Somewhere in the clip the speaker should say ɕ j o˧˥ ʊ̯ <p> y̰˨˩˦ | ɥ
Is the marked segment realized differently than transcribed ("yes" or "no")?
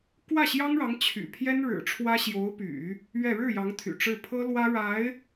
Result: no